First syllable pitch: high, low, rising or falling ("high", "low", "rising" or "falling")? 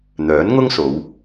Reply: rising